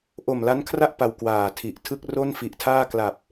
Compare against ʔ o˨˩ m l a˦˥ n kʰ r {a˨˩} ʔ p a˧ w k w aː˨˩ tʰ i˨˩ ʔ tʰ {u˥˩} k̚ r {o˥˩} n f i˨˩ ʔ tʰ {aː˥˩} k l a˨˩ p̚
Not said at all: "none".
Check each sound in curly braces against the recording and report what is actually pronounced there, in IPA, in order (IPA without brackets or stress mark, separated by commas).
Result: a˥˩, ɯ˥˩, o˥˩, aː˥˩